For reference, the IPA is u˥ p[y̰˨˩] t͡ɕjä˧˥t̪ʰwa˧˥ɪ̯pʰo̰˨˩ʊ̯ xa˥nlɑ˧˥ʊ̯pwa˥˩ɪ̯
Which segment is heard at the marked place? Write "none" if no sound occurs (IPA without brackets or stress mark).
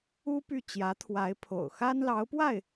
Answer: y˥˩